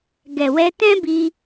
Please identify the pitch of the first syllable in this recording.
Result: low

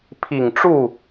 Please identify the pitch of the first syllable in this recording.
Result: low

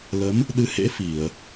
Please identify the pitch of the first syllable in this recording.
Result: rising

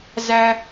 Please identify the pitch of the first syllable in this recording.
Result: high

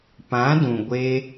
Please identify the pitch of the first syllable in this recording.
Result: rising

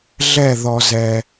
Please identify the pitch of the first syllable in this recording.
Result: falling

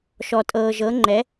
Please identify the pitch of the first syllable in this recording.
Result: low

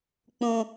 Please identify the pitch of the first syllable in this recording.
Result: high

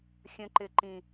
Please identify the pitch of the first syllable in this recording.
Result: high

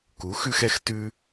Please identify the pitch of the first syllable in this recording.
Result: rising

